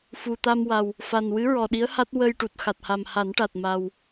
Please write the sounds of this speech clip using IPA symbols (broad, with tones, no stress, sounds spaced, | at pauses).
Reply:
f u˨˩ t̪ a˧ m w a˨˩ w | f a˨˩ n w ɨ˧˥ ɹ ɔ˨˩ ɗ i˧˥ ə̯ h a˦˥ t̚ w ə˧ j ʈ u˨˩ t̚ x a˨˩ t̚ h a˨˩ m h a˨˩˦ n ʈ a˨˩ t̚ m a˨˩ w